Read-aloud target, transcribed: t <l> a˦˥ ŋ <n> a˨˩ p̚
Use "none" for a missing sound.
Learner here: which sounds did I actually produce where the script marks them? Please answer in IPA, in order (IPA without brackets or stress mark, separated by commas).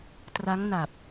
r, n